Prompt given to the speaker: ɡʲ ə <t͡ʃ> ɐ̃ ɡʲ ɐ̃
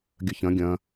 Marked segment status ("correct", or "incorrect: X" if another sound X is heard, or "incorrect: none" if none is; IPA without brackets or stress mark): incorrect: ç